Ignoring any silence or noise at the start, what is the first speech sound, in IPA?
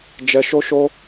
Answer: d͡ʒ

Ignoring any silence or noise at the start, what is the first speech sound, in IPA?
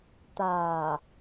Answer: t̪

